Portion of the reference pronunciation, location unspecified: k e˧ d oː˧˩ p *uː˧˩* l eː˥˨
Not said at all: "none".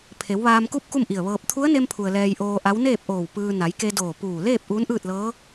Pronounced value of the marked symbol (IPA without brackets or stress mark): uː˧˩